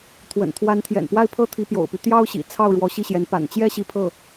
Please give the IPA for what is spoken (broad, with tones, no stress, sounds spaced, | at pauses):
t̪ʰ w ə̰˨˩ n t̪ʰ w a˧˥ n t̪ʰ j ɛ̰˨˩ n p w a˥˧ ɪ̯ pʰ ɤ˥˩ t̪ʰ i˧˥ p j o̰˨˩ ʊ̯ p y˦ t̪ j ɑ˥ ʊ̯ ɕ ḭ˨˩ t͡sʰ ɑ˥˩ ʊ̯ ɻ w ɔ˧˥ ɕ i˥˩ ɕ j ɛ˧˥ n p a̰˨˩ n t͡ɕ j ɛ˥ ɕ i˥˧ pʰ ɤ˥˩